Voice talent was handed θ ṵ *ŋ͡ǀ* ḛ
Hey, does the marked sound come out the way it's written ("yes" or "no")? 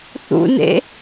no